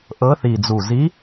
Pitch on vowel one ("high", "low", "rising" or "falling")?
rising